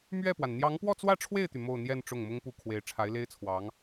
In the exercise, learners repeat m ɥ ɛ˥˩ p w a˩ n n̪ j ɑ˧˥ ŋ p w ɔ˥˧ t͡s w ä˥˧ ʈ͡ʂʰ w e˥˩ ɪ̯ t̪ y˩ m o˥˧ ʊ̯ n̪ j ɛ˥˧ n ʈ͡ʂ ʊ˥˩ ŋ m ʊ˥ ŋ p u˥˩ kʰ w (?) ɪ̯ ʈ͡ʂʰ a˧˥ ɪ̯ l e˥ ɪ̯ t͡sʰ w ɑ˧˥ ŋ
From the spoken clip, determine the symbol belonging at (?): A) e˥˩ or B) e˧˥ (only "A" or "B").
B